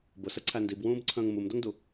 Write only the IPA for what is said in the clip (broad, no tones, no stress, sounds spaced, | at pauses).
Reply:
b ʊ s ə ǀʰ æ n d i b w ũː b ǀʰ ə̃ː ŋ m u m d ʊ ŋ d u